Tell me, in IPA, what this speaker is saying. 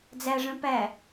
d͡zæʐœ̃ pæ

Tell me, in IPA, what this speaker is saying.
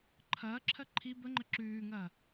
ǃʰɐːǁʰɜ ǃʰi bəŋ͡ǃə ǁʉːŋɐː

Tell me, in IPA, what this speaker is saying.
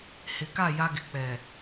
hɪ˨ka˦˨ ja˦ɡɪ˨ k͡pɛ˨

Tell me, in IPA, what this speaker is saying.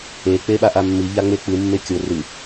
e k͡peɓaʔamːi ʎaŋ͡mek͡pɨ mːekʲo rɨ

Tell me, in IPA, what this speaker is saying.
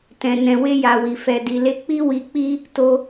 tɛ̃˨ nɛ̃˨we˧ja˨wi˨ fɛ˨di˨le˧k͡pi˦ wi˧k͡pi˦ | to˧

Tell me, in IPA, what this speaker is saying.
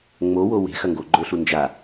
ŋ͡mowo we̤xɐ ŋɡoɡ͡ǃɵɬu nd͡ʒa

